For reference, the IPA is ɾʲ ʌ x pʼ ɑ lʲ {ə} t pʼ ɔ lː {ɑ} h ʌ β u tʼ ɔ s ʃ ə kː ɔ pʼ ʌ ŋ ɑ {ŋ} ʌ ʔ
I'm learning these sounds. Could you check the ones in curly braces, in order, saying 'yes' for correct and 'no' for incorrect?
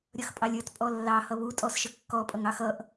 no, yes, no

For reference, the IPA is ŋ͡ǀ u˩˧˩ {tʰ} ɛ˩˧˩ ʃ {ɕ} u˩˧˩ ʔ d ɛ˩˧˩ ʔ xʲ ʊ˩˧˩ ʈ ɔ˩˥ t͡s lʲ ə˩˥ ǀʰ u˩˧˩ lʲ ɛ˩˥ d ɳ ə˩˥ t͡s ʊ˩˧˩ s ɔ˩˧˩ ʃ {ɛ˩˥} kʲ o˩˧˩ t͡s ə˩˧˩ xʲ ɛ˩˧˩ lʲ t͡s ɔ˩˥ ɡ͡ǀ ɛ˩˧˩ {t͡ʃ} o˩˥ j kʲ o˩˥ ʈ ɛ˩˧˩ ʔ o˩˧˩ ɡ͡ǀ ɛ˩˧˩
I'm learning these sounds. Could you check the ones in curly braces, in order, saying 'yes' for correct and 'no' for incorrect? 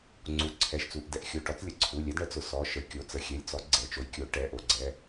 no, no, no, yes

